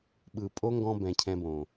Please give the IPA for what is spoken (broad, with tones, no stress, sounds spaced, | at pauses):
ɓ ɯ˨ pʼ o˦ ŋ ɡ ɔ̃˧ b ɛ̃˨ cʰ ɛ̃˧ b õ˨